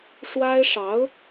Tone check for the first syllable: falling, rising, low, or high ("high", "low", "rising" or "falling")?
high